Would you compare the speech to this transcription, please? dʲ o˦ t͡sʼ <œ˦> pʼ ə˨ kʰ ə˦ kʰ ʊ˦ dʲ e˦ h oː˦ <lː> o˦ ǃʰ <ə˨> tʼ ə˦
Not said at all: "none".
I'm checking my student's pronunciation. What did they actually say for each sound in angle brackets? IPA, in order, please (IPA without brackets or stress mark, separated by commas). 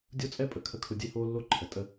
ɛ˦, lː, ə˨